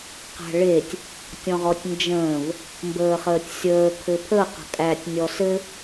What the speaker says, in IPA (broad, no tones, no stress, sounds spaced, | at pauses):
q æ̤ ɭ e tʲ | tʲ ɔ̃ ʁ ɔ tʲ n d͡ʒ ə̃ː v | m b əː χ əː tʲ sʲ əː kʰ ɘ pʰ ə q ə̤ kʼ æ tʲ nʲ ɔ s ɘ